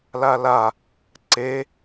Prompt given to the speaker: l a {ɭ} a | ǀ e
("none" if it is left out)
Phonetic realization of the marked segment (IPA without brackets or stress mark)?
l